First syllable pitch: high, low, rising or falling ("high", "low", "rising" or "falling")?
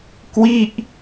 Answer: falling